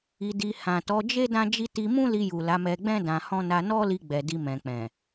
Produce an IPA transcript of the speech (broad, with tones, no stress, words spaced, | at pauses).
i˧di˧ hã˨tɔ˨˦d͡ʒe˦ dã˦d͡ʒi˦ ti˧mũ˦li˧ju˨ la˨˦mɛ˧ɡ͡bɛ̃˦ dã˧hɔ̃˦ na˧nɔ˦li˧ ɡ͡bɛ˨di˧ mɛ̃˨k͡pɛ̃˨